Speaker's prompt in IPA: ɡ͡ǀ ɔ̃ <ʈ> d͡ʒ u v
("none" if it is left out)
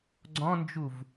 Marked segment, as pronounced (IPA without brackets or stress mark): n